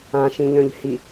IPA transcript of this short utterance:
ã ʃ ĩ ʎ œ̃ ʎ h i

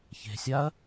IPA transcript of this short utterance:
ç e̤ sʲ a ɐ̯

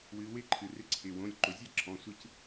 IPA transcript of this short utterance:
w ɨ˩˧ w ɪ˥˨ ǃʰ ɨ˩ r ɪ˦ ǀʰ ɪ˩˧˩ w õ˩˧˩ lʲ ǃ ʊ˩˧ zʲ ɛ˥˨ ǁʰ ɔ̃˩˧˩ sʷ ɨ˦ c

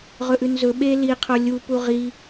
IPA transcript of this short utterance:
ʁ ɵ ʔ ʉ n z ɵ ɓ e l i qʰ o lʲ u p u ʁ i

